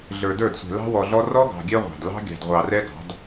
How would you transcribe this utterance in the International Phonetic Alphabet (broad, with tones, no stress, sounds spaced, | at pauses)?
ɮ ə˞˨ d ə˞˦˨ d sʷ ɛ̤˨ l ɑ̤˦ w ɔ˨ ɮ ɔ˦ r ɔ˦ ɡ ɑ̤˨ ɡʲ ɛ˦ ʁʷ ɑ̤˨ d l ɑ̤˦ ɡʲ ɑ̤˨ d ʁʷ ɑ˨ r ɛ˦ ɡ ɑ̤˨˦ d